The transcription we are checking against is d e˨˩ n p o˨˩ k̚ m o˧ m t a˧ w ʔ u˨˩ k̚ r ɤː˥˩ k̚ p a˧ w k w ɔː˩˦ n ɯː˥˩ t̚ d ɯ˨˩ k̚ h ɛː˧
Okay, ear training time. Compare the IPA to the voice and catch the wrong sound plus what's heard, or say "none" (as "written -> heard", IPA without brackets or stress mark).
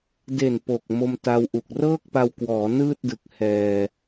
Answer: none